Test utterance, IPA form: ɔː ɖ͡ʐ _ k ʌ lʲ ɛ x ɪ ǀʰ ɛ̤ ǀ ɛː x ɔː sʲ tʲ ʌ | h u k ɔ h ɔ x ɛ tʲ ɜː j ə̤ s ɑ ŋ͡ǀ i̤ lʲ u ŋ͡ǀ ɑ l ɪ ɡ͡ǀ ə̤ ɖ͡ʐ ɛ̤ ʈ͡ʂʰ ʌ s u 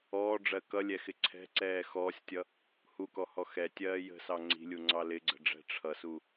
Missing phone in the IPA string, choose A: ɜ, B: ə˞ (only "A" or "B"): A